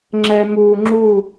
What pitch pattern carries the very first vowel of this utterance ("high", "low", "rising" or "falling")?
low